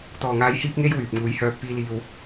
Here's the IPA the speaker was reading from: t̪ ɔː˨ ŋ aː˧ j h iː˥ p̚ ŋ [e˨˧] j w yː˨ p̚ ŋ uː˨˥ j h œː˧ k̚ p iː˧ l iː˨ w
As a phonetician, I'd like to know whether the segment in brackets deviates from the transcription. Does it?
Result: yes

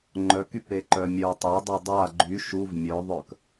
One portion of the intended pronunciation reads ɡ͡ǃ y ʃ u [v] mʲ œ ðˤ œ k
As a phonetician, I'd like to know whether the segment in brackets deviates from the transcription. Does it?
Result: no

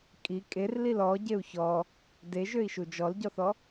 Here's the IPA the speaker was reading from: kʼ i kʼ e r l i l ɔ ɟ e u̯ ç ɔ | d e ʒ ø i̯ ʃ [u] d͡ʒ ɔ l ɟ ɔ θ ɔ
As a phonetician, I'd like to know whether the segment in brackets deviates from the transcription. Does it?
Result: no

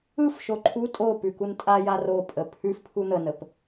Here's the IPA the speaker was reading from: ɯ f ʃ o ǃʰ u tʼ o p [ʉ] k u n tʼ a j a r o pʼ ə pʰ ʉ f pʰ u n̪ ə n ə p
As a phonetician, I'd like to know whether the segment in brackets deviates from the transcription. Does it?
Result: no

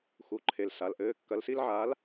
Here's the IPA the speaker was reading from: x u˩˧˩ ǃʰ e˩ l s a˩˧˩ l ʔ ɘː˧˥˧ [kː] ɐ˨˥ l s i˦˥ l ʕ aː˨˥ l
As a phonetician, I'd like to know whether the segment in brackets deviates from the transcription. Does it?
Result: no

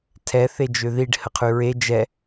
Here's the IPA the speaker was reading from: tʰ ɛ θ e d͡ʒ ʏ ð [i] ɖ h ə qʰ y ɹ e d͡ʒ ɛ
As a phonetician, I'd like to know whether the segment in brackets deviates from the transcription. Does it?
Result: no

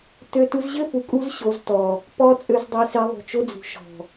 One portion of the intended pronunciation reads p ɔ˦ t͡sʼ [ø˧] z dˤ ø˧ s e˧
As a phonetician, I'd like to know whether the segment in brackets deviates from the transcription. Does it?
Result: no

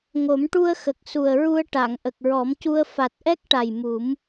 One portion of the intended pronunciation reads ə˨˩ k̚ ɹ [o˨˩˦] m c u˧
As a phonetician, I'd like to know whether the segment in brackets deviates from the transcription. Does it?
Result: yes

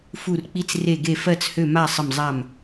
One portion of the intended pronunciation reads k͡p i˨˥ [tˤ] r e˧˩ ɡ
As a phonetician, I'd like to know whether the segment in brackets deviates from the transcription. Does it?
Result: yes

